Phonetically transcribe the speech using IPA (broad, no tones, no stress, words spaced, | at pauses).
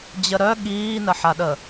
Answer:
d͡ʑəɾœ ɠiːnəħaɗə